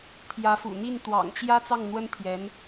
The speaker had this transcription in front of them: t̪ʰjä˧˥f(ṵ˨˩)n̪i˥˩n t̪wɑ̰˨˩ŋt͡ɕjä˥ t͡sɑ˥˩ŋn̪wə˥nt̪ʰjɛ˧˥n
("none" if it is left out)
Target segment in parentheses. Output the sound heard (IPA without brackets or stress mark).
ṵ˨˩